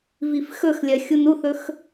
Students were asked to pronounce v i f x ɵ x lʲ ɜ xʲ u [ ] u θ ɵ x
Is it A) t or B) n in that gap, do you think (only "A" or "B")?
B